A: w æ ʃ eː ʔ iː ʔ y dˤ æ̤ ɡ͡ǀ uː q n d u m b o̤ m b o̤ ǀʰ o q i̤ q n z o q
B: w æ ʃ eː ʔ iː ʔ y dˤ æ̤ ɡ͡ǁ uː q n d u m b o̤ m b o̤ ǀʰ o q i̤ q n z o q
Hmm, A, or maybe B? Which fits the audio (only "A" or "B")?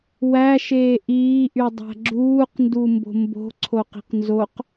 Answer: B